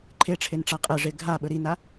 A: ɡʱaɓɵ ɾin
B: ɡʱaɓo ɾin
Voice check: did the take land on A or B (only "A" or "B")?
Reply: A